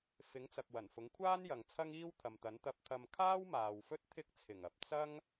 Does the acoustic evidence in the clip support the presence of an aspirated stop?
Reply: yes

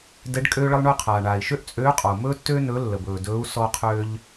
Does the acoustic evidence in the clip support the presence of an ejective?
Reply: yes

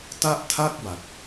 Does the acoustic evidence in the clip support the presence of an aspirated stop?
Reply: yes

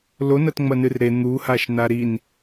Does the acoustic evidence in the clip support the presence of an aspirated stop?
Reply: no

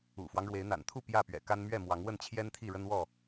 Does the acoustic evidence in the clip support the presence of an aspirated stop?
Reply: yes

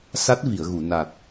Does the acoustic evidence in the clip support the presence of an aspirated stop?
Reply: no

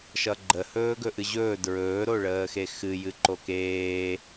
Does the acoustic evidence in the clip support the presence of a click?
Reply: yes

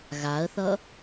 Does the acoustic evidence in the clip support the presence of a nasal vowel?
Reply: no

